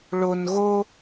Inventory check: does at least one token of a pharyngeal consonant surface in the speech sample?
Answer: no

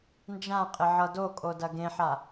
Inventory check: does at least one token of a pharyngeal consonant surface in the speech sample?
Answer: yes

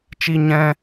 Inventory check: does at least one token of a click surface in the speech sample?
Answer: no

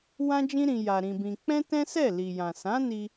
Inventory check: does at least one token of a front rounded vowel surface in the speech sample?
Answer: no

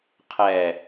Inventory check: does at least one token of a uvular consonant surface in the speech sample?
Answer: yes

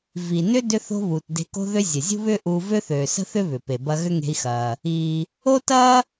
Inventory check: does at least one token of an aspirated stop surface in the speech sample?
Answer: no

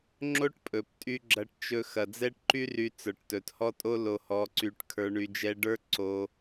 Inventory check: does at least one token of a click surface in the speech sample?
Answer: yes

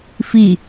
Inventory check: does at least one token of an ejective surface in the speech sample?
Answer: no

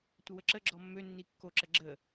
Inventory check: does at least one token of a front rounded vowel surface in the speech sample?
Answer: yes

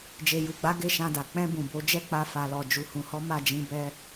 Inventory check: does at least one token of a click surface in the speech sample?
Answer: no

